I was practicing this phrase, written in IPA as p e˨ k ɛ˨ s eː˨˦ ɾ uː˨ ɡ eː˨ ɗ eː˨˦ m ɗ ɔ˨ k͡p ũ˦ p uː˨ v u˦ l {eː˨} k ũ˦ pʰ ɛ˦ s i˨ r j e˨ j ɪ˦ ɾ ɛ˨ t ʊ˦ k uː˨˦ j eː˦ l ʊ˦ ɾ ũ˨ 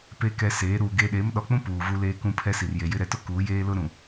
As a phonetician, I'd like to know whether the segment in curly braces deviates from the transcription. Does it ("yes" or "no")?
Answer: yes